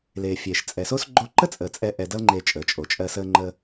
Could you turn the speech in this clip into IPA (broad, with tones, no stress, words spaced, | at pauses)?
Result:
le˨fʲe˨ʃ t͡sʼɛ˨so˦s ɡ͡ǃo˧ǃə˦t͡sʼəː˨ t͡sʼɛ˦ ʔɛ˧dʌ˦lŋ͡ǃe˧ t͡ʃʼəː˨t͡ʃʼo˨t͡ʃʼɜ˧ səː˦ŋ͡ǃə˦